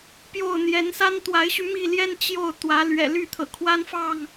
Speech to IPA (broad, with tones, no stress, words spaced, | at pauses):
pjo˥˨ʊ̯n̪jɛ˨˦n sa˦nt̪wa˨˦ɪ̯ɕy˧ mi˥˨ljɛ˦n t͡ɕjo˥˨ʊ̯ t̪wä˨˦ lɥɛ̰˨˩ly˥˨ t̪ʰɤ̰˨˩kʰwa˦nfɑ˥˨ŋ